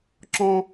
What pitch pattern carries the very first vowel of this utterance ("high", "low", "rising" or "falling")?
high